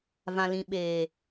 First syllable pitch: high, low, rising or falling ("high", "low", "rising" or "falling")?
low